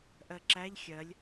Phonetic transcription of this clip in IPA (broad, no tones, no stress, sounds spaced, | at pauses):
ʔ ɜ ǁ æ ʎ xʲ ɜ lʲ